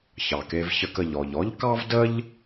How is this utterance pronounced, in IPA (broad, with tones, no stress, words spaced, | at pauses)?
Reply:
çɑ˩ke˨vçə˨k ə˩ʎɔ˩ʎɔ˥ʎkɑ˥v də˥ʎ